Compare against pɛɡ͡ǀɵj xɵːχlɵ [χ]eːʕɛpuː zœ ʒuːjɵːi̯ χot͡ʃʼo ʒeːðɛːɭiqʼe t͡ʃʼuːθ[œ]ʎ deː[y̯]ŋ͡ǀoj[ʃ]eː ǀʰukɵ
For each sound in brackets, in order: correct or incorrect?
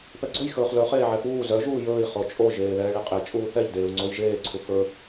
correct, incorrect, incorrect, incorrect

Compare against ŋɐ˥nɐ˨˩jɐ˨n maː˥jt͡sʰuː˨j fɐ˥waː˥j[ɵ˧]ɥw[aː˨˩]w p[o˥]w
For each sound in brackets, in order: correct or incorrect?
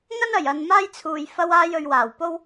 correct, correct, correct

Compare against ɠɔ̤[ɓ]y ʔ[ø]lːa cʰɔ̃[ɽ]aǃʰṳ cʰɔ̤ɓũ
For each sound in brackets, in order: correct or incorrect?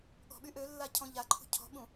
correct, correct, incorrect

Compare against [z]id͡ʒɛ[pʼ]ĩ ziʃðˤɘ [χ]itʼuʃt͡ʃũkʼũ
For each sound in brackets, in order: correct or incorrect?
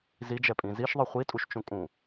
correct, correct, incorrect

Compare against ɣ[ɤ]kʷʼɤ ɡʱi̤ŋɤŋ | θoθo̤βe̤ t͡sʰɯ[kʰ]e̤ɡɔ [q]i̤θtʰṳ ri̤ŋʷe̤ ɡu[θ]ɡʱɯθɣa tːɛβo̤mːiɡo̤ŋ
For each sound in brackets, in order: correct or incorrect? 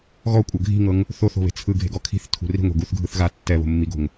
incorrect, incorrect, incorrect, correct

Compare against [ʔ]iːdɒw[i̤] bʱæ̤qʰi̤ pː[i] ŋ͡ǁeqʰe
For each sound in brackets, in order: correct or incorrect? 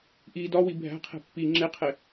correct, incorrect, correct

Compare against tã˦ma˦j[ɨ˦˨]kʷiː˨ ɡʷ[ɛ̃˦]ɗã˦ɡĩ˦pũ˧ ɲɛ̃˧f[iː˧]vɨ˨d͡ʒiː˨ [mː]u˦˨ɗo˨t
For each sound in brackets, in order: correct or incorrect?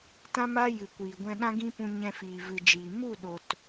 incorrect, incorrect, incorrect, incorrect

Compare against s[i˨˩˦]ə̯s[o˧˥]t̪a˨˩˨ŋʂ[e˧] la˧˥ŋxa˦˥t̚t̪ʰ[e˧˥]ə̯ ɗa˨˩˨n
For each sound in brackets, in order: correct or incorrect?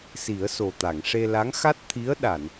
correct, incorrect, correct, incorrect

